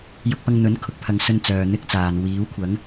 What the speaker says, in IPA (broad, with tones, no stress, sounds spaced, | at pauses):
j ʊ˧ k̚ p ɐ˧ ŋ n̪ ɵ˨˥ n kʰ ʊ˨ k̚ pʰ ɐ˨˧ ŋ s ɵ˧ n t͡s œː˨ n̪ ɪ˥ k̚ t͡s aː˨ n w iː˨˥ w kʷʰ ɐ˨˥ ŋ